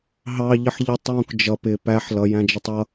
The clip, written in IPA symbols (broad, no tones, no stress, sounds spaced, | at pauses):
ɦ ɑ ʎ ə ħ ʎ ə tˤ j ũ k d͡ʒ ʌ p ɪ p æ ħ l ʌ j æ̃ d͡ʒ ə tˤ ʌ